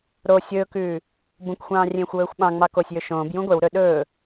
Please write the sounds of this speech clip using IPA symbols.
ɾ o sʲ ɵː k ʉː | b ũ k xʷ ɑ̃ː rʲ ẽː xʷ w ɵː xʷ ɓ ɑ̃ ŋ͡m ɑ k o sʲ j ɵ ʃ õː b j ũ ɡʷ e w ɾ ɵ ɗ ɵː

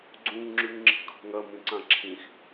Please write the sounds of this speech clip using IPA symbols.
ɡ͡ǀ ũ ŋ ŋ͡ǁ ʉ ŋ ŋ͡ǁ i̤ kʰ o̤ ŋ ɐ m ĩ ǀ ã ǁʰ ĩ x

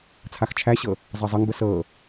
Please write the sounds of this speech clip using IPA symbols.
t͡sʰ a x t͡ʃʰ æ ɕ ɤ | zˤ ɜ zˤ ɤ ŋ b ə s ɤ

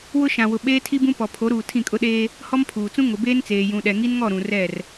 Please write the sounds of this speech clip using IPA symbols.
w ʊ˦ ʃ ã˨ w ʊ˨ ɓ eː˦ tʰ i˦ b ũ˦ p ɔ˨ pʰ o˨˦ ɾ uː˨ tʰ ĩ˦˨ kʼ ʊ˦ ɗ eː˦ | h ɔ˦ m pʰ uː˨ t͡s ũ˦ ŋ ʊ˨ b eː˦ n t͡s eː˨ j ũ˨ ɗ ɛ˨ ŋ i˦ n ŋ ɔ˦˨ ɾ ũ˨ r ɛ˦˨ r

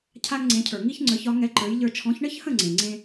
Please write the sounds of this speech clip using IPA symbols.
cʰ a˥ ŋ ŋ͡ǀ ẽ˩˥ cʰ ə˞˩ ŋ i˥ ç ŋ͡ǀ ə˞˩˥ ç ɒ˩˥ ŋ ɛ˧ ǃ ə˞˩˥ j ʎ ə˞˧ t͡ʃʰ ɔ̃˩˥ ç ɳ ə˥ ç h ə̃˥˩ ŋ͡ǀ ẽ˩ ŋ͡ǀ ẽ˥

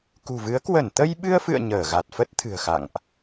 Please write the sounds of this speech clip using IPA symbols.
k ṳ˨˩ v ɨ˨˦ ə̯ k w ə˧˩ n t̪ ə˧ j ɓ ɨ˧ ə̯ f ɨ̰˧˨ ə̯ ɲ əː˧˩ ɣ a˨˩ t̚ f ə˦˥ t̚ t̪ʰ ɨ̤˨˩ ə̯ x a̰˧˨ ŋ ʔ

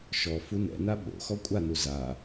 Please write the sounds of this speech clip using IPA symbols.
ʃ ɔ f u n ɛ̰ n a ɓ o̰ x ɔ kʷʼ a n u z a

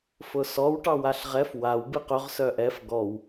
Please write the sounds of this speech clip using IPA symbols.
f ʊ s ɔ w ʈ ɑ w a ɬ ʁ ɛ f w a w b ɨ q œ ʁ s œ ʔ ɛ f ɡ ɔ w

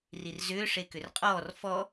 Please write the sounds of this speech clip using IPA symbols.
r i r z ʏː ʂ e k ʏ r qʼ ɔː r f ɔ

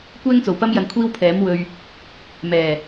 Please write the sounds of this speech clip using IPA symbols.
kʷ ɛː˥ ŋ t͡s o˨˩ w p ɐ˥ m j ɐ˧ n kʷʰ iː˥ w pʰ ɛː˨˥ m w ɵ˧ ɥ | m ɛː˨˩

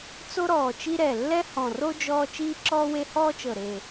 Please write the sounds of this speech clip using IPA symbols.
t͡s o˦ ɾ ɔː˨˩ t͡ʃ i˦ ɾ ɛ˨˩ lː ɛ˦ h ɔ̃˨˩ r o˦ d͡ʒ ɔː˦ t͡ʃ iː˦ ǁ ɔː˦ w e˦ h ɔː˦ t͡ʃ ɤ˨˩ ɾ e˨˩

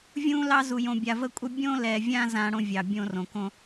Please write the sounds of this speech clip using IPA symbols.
vʲ ũ˦ l ɑ˦ z u˨ j õ˨ bʲ a˨ v ə˦ kʷʼ ə˦ bʲ õ˦ l ɛ˨ vʲ ã˦ z ã˦ ɽ õ˦ vʲ ɑ˨ bʲ õ˦ r õ˨ k õ˦

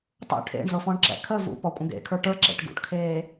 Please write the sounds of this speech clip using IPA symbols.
tˤ ṵ ʈʰ ḛ ɳ z ɤ f ɔ̃ ɳ ǁ ɛ̰ kʰ ə v ṵ p ɔ kʷʼ ə̃ ɡ ḛ kʰ ə˞ ʈ ə˞ ǁ ḛ ʈ ɡ ṵ ʈ kʰ eː

